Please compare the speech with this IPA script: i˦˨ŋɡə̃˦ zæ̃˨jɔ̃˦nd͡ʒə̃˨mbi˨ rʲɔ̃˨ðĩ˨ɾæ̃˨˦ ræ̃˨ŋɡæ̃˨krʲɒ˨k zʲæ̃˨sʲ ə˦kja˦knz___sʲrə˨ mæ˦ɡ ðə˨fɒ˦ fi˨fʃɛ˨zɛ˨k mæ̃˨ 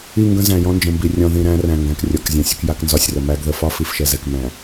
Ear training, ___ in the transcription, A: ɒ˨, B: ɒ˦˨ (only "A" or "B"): B